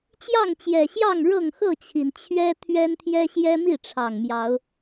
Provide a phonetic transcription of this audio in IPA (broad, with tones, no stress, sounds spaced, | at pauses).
t͡ɕ j ɑ˥˨ ŋ t͡ɕ j ɛ˨˩ ɕ j ɑ˥˨ ŋ ɻ ɤ˥˨ ŋ x ɤ˥˨ t͡ɕʰ i˩ n t͡ɕʰ ɥ ɛ˦ t̪ʰ ɥ ɛ˦ n t̪ʰ j ɛ˦ ɕ j ɛ˦ m i˥˨ ʈ͡ʂʰ ɑ˨˩ ŋ m j ɑ˨˦ ʊ̯